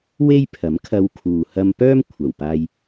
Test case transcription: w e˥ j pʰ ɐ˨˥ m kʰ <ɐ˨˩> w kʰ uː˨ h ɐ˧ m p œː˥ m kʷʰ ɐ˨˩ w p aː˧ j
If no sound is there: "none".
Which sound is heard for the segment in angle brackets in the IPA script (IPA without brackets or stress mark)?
ɐ˧